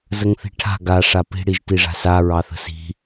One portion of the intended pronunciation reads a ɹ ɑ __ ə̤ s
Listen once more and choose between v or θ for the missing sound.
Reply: θ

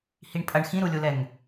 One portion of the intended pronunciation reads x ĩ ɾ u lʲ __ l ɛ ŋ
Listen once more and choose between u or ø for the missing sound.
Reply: u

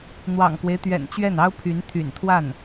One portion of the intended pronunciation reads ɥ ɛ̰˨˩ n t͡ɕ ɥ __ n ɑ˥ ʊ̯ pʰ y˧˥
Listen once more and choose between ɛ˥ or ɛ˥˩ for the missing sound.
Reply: ɛ˥˩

